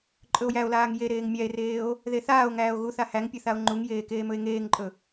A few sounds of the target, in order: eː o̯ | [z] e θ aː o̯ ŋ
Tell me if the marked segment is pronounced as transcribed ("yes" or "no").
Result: no